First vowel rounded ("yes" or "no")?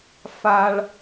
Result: no